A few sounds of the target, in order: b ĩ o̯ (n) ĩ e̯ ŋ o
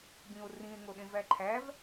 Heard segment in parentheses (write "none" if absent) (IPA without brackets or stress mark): r